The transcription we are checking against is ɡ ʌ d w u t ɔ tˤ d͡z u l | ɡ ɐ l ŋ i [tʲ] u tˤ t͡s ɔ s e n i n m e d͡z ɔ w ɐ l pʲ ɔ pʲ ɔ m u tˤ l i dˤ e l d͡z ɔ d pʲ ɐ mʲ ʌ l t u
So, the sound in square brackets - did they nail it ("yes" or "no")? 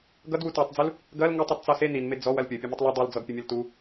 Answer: no